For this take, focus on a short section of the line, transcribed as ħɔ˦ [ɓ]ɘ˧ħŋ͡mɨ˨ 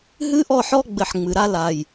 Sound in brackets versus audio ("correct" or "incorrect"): incorrect